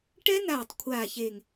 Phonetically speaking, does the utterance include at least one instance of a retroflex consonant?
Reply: yes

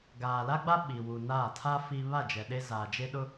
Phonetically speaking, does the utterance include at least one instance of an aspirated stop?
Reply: yes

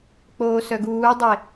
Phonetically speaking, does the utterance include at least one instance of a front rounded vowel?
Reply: yes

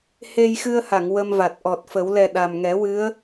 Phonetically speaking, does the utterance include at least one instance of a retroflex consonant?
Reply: no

